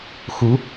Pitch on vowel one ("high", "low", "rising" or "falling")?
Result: rising